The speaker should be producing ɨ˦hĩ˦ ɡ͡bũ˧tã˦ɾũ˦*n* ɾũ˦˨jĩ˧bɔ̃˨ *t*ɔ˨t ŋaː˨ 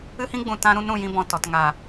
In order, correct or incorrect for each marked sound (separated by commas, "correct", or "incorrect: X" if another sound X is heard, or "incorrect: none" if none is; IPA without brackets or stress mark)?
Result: correct, correct